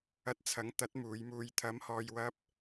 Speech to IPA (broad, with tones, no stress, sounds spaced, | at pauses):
ɐ˧ t̚ t͡sʰ ɐ˨˥ ŋ t̪ ɐ˨˥ t̚ m uː˨˧ j m uː˧ j t̪ʰ ɐ˨˧ m h ɔː˨ j w ɐ˧ p̚